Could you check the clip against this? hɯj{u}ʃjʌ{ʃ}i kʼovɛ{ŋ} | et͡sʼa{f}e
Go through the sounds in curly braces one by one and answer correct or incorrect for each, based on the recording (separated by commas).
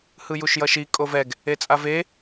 correct, correct, incorrect, incorrect